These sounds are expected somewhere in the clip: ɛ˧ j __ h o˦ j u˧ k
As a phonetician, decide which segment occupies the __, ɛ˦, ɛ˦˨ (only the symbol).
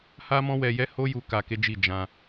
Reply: ɛ˦